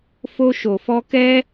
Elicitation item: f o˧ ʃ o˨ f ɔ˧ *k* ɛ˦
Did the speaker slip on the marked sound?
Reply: no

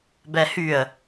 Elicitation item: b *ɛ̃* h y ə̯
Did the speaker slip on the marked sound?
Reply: yes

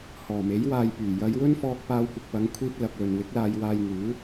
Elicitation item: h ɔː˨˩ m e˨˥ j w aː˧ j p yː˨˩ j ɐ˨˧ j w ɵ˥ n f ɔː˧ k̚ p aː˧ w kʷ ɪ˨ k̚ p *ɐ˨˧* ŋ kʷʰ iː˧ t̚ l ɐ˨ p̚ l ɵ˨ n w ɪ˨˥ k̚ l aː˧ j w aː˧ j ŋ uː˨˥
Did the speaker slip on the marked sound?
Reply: no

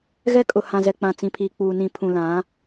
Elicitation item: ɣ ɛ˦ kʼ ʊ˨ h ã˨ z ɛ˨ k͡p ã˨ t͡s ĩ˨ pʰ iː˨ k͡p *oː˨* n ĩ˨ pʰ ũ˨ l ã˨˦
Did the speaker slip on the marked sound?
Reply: yes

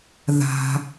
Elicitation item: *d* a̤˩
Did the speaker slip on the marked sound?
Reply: yes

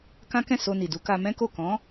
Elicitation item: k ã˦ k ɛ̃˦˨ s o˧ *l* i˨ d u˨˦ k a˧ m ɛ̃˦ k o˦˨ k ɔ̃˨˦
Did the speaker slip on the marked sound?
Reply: yes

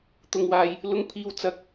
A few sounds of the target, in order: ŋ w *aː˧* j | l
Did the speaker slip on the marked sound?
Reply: yes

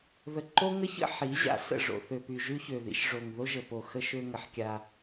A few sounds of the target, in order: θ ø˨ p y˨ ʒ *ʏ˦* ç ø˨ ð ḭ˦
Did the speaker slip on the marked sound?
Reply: yes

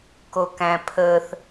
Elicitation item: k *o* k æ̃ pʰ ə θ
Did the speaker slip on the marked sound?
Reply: no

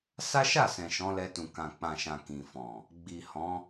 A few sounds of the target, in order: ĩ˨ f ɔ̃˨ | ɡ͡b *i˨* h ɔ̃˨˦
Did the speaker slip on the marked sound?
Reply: no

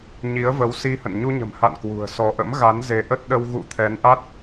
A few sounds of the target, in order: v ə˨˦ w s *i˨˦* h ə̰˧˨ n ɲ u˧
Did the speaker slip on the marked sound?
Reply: yes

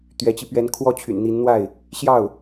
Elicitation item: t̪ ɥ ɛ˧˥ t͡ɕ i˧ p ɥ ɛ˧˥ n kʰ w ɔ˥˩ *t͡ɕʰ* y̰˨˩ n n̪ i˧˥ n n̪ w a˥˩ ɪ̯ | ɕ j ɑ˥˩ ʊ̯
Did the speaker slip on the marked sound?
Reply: no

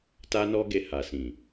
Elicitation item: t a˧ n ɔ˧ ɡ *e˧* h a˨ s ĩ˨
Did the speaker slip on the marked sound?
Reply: no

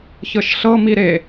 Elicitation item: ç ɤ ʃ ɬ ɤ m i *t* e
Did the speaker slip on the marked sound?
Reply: yes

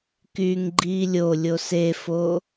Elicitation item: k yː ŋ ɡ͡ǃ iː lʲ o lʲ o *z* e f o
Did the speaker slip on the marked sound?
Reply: yes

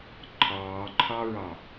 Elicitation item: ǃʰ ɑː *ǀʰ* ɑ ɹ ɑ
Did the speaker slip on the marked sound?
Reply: yes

